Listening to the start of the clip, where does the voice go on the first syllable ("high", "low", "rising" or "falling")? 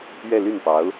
falling